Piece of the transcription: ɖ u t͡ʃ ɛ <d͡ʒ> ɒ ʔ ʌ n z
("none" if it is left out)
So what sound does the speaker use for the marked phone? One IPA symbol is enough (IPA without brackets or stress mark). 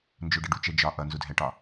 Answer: d͡ʒ